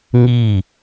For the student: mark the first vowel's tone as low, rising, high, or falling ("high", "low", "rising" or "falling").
falling